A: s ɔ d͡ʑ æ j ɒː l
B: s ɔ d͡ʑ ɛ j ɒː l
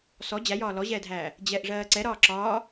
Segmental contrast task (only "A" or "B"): A